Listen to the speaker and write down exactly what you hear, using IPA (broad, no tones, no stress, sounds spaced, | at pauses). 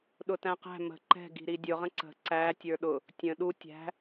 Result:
ɗ ʊ t æ̃ q æ̤ m ə̤ ǃ ɛ̤ ɡ i̤ ɾ i dʲ ʊ ʁ ə̃ ǀ ə̤ ǀ æ tʲ ə˞ ɗ ʊ | tʲ ə̃ ɗ u tʲ æ̤